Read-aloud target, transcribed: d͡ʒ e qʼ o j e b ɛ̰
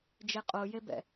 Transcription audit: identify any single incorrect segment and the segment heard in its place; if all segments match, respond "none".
none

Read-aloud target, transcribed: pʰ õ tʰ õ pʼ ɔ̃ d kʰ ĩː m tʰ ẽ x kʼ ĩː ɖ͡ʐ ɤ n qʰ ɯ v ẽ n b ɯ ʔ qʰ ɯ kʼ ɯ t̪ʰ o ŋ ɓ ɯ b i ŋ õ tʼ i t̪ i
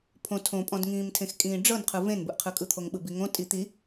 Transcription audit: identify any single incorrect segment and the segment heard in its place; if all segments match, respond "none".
kʰ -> ŋ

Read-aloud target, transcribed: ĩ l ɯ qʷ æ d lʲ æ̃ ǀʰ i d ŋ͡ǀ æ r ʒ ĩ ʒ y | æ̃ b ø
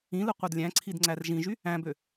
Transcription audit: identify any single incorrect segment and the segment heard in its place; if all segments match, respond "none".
none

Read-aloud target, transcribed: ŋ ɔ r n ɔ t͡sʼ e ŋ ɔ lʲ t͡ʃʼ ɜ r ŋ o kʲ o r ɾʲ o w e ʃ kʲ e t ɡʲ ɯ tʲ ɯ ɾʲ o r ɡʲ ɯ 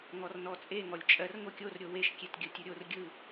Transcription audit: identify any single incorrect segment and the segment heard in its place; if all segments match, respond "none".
none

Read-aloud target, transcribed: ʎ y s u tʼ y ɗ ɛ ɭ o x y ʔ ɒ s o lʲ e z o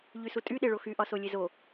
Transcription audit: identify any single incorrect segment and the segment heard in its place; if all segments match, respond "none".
ɛ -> e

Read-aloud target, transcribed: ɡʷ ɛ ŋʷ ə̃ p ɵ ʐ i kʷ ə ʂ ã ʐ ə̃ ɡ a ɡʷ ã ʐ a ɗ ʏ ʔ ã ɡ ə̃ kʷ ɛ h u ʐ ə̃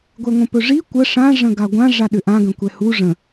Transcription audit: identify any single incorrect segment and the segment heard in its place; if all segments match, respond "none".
none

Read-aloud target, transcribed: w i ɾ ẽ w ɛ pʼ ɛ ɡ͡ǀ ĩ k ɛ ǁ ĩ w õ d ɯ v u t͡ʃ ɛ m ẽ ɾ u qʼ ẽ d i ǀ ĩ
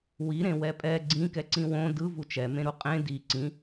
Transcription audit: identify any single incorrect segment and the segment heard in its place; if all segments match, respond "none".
ǁ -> ǀ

